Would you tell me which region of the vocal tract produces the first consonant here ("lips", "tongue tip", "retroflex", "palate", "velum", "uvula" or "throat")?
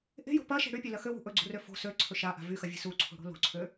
throat